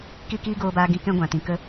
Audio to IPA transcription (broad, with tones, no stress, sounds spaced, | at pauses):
k i˦˨ k iː˦ ɡ oː˧ b aː˧ ɡ ĩ˧ k ɛ̃˦ ɡʷ ã˨ t ĩ˨ k ə˦